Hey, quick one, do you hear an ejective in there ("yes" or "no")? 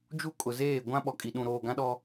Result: yes